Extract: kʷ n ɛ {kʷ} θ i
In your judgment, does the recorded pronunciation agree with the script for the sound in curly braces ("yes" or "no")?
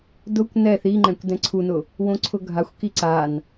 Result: no